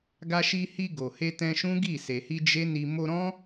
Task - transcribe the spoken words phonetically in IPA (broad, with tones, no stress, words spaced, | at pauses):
ɡa˧ʃi˧hi˧ ɡo˨ he˧tɛ̃˧ʃũ˦ɡi˦˨ se˨hi˧ d͡ʒe˦ni˧ mo˧ɾɔ̃˦